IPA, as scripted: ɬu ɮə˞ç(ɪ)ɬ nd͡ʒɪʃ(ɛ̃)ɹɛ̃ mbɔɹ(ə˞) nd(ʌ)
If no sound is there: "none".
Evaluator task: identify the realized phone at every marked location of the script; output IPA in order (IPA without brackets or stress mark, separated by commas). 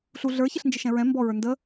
ɪ, ɛ̃, ə˞, ə